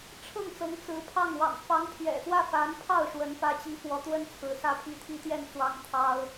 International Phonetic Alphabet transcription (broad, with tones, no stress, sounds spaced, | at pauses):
ʈ͡ʂʰ ɤ˥˩ ŋ t͡s ɤ˧˥ ŋ t͡s ɹ̩˧˥ pʰ ɑ˥˩ ŋ w ɑ̰˨˩ ŋ f ɑ˧˥ ŋ pʰ ɥ ɛ̰˨˩ x w ä˥˩ f a˧˥ n pʰ ɑ˥˩ ʊ̯ ʂ w ə˧˥ n p ä˥ t͡ɕ i˥ f w ɔ˧˥ t̪ w ə˥ n t͡sʰ ɹ̩˧˥ s ä˥ pʰ i˥ t̪ʰ i˥ t̪ j ɛ˥˩ n t͡s w ɑ˥ ŋ t̪ʰ ɑ˥ ʊ̯